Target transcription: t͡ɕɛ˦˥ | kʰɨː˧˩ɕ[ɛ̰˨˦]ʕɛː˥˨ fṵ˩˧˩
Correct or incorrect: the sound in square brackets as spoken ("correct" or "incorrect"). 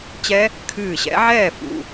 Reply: correct